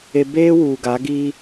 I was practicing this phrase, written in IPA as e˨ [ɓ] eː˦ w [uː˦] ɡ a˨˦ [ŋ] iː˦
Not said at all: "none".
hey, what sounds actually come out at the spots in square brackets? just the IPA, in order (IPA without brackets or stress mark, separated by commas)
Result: b, uː˨, ɡ